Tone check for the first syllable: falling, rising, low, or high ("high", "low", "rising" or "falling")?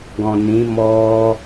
low